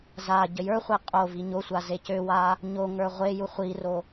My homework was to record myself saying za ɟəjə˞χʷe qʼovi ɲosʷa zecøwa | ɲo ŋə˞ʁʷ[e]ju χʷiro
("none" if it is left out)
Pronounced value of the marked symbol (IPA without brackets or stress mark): e